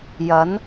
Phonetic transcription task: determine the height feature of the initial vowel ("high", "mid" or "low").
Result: low